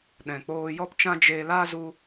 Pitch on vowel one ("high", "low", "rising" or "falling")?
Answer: low